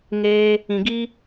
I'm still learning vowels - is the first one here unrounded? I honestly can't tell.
yes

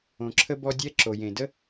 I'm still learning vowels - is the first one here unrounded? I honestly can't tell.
no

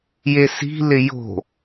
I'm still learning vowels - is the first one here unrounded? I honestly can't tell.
yes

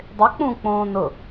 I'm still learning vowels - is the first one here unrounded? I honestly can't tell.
yes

